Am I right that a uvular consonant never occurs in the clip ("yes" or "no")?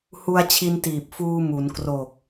yes